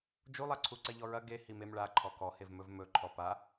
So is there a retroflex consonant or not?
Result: yes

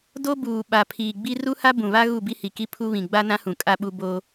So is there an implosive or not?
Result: yes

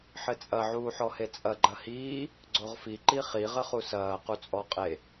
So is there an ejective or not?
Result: yes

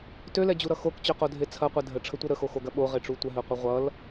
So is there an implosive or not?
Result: yes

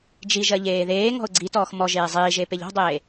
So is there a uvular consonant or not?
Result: no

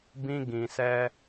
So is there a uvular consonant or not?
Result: no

